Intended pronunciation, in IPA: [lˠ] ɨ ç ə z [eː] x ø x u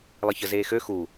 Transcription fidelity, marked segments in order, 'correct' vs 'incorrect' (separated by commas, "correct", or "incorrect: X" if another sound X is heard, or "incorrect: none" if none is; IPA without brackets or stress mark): correct, correct